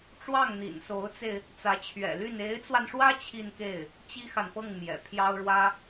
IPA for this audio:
ʈ͡ʂ w ɑ˥˩ ŋ n̪ ḭ˨˩ n s o˧˥ ʊ̯ t͡s e˧ ɪ̯ | t͡s ä˧˥ t͡ɕʰ ɥ ɛ̰˨˩ l y˥˩ n e˧˥ ɪ̯ t͡s w a˧ n ʂ w ä˥ t͡ɕʰ i˥˧ n k e˥˩ ɪ̯ | t͡ɕ i˥ x a˨ n p ɤ˥˩ ŋ m j ɛ̰˨˩ pʰ j ɑ˥ ʊ̯ ɻ w ä˥

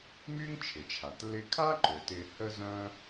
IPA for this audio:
m y˥ ŋ t͡ʃʰ ɪ˩ t͡ʃʰ a˩ t l ɪ˧ kʰ a˥ ǃ ø˩ t ɪ˧ h ə˥ z œ̃˥

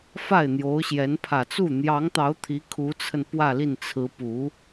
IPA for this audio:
f a˥˩ ɪ̯ n̪ j o˧˥ ʊ̯ ɕ j ɛ˧˥ n pʰ ä˨˩ t͡s u˥˩ n̪ j ɑ˧˥ ŋ t̪ ɑ˧˥ ʊ̯ t̪ʰ i˧˥ kʰ u˧˥ t͡sʰ ə˧ n p w ä˥˧ l i˥˩ n t͡sʰ ɹ̩˧˥ p u˧˥

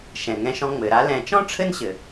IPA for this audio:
ʃ ɛ̃˩ ŋ ɛ̃˧ ʃ ɔ̃˧ ŋ͡m ɘ˩ ɾ a˧ l ɛ̃˧ t͡ʃ ɔ̃˥ ʈ͡ʂʰ ɘ˥ n ɕ ɘ˩

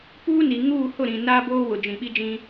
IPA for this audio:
p uː˦ n i˨ ŋ uː˦˨ h ʊ˦˨ ɾ ĩ˨ n aː˦ b oː˦ w ʊ˨ d͡ʒ ĩ˨ ɓ i˦ d͡ʒ ĩ˦

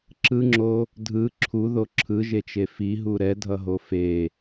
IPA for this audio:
ǁ ɯ ŋ͡ǁ o | dʱ ɯ ǁʰ u ð o ǁʰ ɯ ʒ e t͡ʃ e f i ɦ u ɾ ɛ dʱ ʌ ɦ o f e

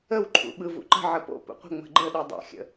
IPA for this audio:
ə w ǃʰ ṵ ɓ ɯ v ṵ ǃ ə̤ ʕ ə p o̰ p ṵ qʷ ə̤ ŋ͡m ə̤ ɡ͡ǃ ə ɗ ɯ dˤ o̰ xʲ ə̰

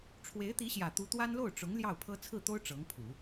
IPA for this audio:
ʈ͡ʂʰ w e˧˥ ɪ̯ t̪ i˧˥ ɕ j ä˨˩ t̪ u˧˥ t̪ w a˥ n l o˥˩ ʊ̯ ʈ͡ʂ ʊ˧˥ ŋ l j ɑ˥˩ ʊ̯ pʰ ɤ˥ t͡sʰ ɹ̩˥˩ t̪ o˥ ʊ̯ ʈ͡ʂ ɤ˧˥ ŋ pʰ u˨˩˦

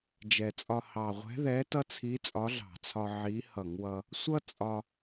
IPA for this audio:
d͡ʒ ɛ˨˩ t͡sʼ ɒ˧ h ɑ˨˩ ʁʷ ɛ̤˧˥ ð ɛ˧˥ t ʌ˥ t͡sʰ i˧˥ t͡sʼ ɒ˧˥ ɮ ɑ̤˧˩˧ t͡sʰ ɒ˧ ʕ i˧˥ h ʌ˧˩˧ ŋ w ʌ˧ | sʷ ʌ˥ t͡sʼ ɒ˧

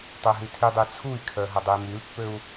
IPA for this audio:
tˤ ø ɦ y tʰ y dˤ y t͡sʰ u i̯ kʰ œ ɦ ɐ dˤ u i̯ m y l pː ø u̯

